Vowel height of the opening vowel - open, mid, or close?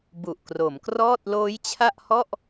close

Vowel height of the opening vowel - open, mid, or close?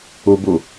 close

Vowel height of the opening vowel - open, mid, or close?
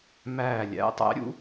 open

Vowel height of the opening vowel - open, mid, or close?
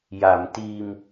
open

